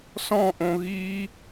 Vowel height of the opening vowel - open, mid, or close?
mid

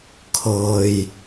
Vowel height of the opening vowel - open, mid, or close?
mid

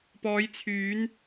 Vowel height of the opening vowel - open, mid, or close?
mid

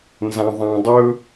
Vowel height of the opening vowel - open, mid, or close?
open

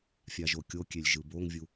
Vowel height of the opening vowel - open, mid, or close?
open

